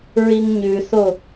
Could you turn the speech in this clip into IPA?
ɹ i ŋ ɲ ʉ θ o

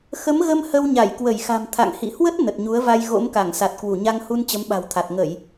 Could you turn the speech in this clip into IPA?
x ə˨˦ m ɣ ə˧ m h ə˧ w ɲ a˧˩ j k w ə˧˩ j x a̤˨˩ m t̪ʰ a̰˧˨ ŋ h ḭ˧˨ h w ə˦˥ t̚ n ə˨˩ t̚ ɲ u˨˦ ə̯ v a˧ j ɣ o̰˧˥ m k a˧˩ ŋ s a˨˩ t̚ k w u˧˩ ɲ a˧ ŋ h u˧ n t͡ɕ ə˨˦ m ɓ a̤˨˩ w t̪ʰ a˨˩ t̚ ŋ ə˧˩˨ j

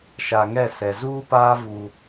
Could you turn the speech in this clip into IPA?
ʃ a˨ ŋ ɛ˦˨ s ɛ˨ z uː˦ p aː˦ v u˦

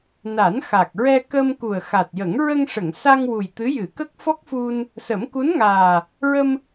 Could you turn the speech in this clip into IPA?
n a˨˩˦ n x a˨˩ k̚ ɹ ɛ˧ k ə˧ m k u˨˩ ə̯ x a˨˩ t̚ j ə˨˩˦ ŋ ɹ ə˧ ŋ ʂ ə˨˩˨ ŋ s a˧ ŋ w u˨˩ j t̪ ɨ˧˥ j ɨ˨˩˦ k ə˦˥ k̚ f ɔ˦˥ k̚ f u˧ n | s ə˨˩˦ m k u˧˥ n ŋ aː˨˩ | ɹ ə˧ m

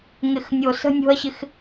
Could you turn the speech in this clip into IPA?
ŋ ɪ˧ x nʲ o˧ s ə̤˦ nʲ o̤˦ ɐ̯ ɕ ɪ˦ x

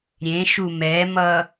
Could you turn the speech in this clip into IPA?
ɾʲ ẽ ʃ u m ɛ m ʌ

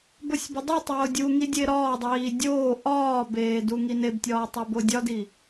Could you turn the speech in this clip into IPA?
b o sʲ b e dˤ u tˤ oː dʲ u ŋ i dʲ e ɾ ɒː dˤ iː dʲ oː ʔ ɒː b eː d u ŋ i n e b tʲ ɒː tˤ o b o dʲ ɒ d i

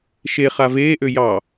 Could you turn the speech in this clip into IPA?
ʃ e χ a v eː ʔ ø j ɑ

